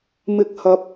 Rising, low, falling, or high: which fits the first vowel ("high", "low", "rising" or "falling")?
rising